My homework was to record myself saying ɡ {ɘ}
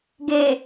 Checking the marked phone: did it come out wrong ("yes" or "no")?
yes